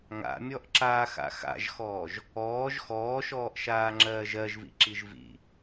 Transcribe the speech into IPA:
ŋa̰mʲɔʔǁaːxa̰ xa̰ʒxɔːʒ | ɔːʒ xɔːʃɔːʔʃaːŋ͡ǁɜːʒ ɜʒvḭǁiʒ vḭ

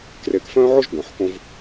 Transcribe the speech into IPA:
kre˨kfœ̃ː˦ʕo˦ʒ ɡœ̃˨ħkõ˦v

